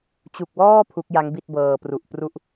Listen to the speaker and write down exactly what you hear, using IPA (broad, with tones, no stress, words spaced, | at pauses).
t͡ɕu˨˩k̚wɔː˥˩ pʰu˦˥k̚ja˦˥ŋbi˥˩t̚bɤː˨˩ pru˨˩ʔpru˥˩ʔ